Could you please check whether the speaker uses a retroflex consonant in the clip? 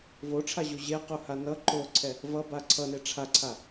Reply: yes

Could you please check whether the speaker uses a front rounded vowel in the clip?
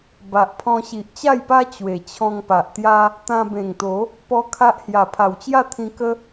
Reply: no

